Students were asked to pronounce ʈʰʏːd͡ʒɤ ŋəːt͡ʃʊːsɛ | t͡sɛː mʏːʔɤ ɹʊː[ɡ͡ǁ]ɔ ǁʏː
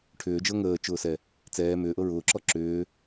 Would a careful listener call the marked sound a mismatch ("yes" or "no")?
yes